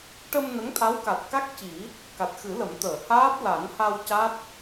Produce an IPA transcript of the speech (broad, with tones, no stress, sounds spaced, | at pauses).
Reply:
ʈ ə˧ m n ə˧˥ ŋ t̪ʰ a˧˥ w k a˨˩ t̚ k a˦˥ k̚ c i˨˩˦ | k a˨˩ t̚ x ɨ˨˩˦ l ə˨˩˦ m t̪ əː˨˩˨ h aː˦˥ p̚ l a˨˩˦ n h a˧ w c a˦˥ t̚